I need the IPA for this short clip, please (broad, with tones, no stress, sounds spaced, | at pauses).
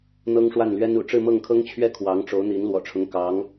n̪ ɤ˥ ŋ ʂ w a˥˩ n l ɥ ɛ˥ n ṵ˨˩ ʈ͡ʂ ɻ̩˥˧ m ɤ˥˩ ŋ kʰ ɤ˥ ŋ t͡ɕʰ ɥ ɛ˥ kʰ w ɑ˧˥ ŋ ʈ͡ʂ o˧˥ ʊ̯ n̪ i˧˥ n l w ɔ̰˨˩ ʈ͡ʂʰ ʊ˧˥ ŋ k ɑ˧˥ ŋ